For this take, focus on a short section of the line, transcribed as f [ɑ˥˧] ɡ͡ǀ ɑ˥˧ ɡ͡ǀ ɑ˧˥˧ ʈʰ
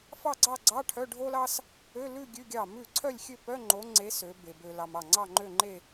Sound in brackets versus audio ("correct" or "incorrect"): correct